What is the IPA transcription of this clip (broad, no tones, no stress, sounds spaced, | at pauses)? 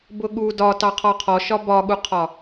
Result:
b ʊ ɠ u d ɒ t ɑ qʰ ɔ qʰ ɔ ʃ ɒ b ɒ ɠ u qʰ ɒ